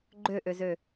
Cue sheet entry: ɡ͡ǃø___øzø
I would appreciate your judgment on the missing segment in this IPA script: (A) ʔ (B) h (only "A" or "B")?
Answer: A